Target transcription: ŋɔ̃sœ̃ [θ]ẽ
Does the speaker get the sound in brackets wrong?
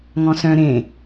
yes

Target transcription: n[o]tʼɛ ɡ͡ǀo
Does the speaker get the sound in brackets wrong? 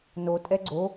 no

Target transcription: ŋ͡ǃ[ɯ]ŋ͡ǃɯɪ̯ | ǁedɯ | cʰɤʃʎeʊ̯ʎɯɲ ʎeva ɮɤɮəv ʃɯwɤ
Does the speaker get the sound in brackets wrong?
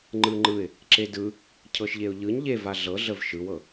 no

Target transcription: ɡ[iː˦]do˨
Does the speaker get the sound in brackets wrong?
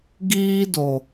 no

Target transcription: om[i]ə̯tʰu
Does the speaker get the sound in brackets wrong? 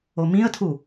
yes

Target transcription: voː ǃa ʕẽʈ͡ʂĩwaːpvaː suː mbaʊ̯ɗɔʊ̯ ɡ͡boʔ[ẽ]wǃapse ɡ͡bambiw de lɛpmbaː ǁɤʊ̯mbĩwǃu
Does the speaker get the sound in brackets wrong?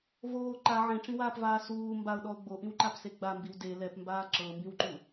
yes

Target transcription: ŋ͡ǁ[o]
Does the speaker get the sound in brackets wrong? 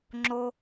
no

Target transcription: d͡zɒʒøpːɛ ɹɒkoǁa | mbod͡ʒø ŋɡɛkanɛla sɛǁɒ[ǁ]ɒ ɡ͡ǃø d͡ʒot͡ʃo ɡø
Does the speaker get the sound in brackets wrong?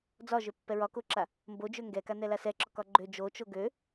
yes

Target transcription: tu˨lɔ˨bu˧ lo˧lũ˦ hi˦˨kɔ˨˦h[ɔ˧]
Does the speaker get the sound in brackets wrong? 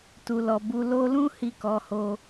yes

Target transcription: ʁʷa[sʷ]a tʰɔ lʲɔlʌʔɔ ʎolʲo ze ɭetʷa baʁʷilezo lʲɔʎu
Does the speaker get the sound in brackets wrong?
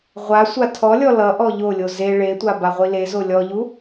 no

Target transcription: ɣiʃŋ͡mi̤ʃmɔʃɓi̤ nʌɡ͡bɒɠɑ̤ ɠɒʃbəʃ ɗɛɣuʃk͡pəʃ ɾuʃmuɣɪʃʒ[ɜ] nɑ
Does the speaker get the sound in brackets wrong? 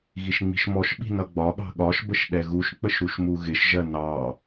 no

